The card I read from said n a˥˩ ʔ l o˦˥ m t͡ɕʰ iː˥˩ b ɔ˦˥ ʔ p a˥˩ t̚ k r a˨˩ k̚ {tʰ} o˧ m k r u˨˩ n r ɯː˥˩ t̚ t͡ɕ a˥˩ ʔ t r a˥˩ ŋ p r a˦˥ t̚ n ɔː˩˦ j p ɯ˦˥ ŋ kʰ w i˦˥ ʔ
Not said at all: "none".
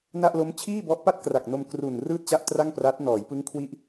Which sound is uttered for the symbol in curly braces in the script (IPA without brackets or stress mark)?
n